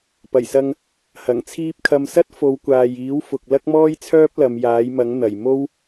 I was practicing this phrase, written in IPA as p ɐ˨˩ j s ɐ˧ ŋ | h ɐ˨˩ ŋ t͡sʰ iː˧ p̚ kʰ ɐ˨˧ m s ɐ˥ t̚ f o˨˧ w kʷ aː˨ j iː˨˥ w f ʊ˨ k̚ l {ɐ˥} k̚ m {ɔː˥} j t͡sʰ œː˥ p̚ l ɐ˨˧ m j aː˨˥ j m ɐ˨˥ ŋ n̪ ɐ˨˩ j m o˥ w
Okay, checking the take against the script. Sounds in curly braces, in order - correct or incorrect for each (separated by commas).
correct, correct